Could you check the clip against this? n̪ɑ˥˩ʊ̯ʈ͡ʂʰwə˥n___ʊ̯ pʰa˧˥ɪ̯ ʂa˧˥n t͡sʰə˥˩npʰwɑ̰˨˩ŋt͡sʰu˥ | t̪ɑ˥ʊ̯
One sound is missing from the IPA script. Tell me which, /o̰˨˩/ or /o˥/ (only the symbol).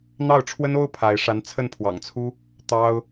o˥